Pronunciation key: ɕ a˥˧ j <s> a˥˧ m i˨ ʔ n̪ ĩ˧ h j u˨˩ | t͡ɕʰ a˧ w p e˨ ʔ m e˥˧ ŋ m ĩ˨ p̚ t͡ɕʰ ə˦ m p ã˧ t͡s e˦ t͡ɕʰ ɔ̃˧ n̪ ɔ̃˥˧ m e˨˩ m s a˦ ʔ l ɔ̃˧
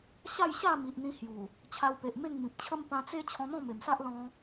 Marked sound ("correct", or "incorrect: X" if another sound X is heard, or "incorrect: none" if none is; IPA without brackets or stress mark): incorrect: ɕ